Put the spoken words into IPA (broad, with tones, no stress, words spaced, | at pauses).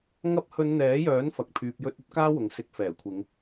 ŋɐ˧p̚hɵ˨˧n n̪ɛː˨˥jœː˨˥n fɐ˨k̚ pʰyː˨p̚jɵ˧t̚ ɵ˥t̚kaː˥wʊ˨ŋ sɪ˨˥k̚fɛː˨˩kʷʰɪ˨˧ŋ